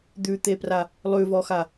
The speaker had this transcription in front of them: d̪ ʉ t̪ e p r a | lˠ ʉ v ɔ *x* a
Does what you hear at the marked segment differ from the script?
no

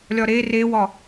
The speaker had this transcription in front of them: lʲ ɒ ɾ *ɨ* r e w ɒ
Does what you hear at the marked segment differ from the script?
yes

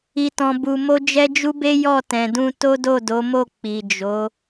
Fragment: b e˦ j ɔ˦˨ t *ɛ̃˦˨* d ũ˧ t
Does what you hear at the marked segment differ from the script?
yes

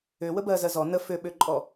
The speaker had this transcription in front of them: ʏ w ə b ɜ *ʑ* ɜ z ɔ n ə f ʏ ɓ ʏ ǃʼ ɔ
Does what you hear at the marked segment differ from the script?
yes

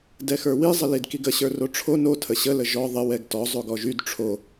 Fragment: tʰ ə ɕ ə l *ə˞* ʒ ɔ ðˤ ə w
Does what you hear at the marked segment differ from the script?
yes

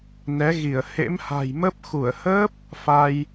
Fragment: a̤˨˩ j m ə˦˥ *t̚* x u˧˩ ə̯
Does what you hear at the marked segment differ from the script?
yes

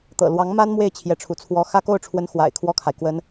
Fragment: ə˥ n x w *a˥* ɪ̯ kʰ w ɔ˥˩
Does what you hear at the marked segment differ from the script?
yes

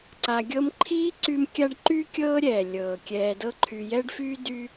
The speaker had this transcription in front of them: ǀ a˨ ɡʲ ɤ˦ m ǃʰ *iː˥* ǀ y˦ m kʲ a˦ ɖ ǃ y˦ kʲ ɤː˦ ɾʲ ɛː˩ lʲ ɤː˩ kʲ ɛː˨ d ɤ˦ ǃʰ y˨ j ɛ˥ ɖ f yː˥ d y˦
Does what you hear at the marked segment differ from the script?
no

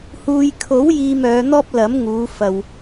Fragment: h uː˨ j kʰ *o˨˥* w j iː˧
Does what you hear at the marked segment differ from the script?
no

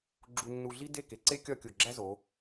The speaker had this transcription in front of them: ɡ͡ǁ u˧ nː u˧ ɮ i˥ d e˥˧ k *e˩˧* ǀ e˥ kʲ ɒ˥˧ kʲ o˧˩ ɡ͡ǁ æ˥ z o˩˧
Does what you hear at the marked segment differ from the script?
no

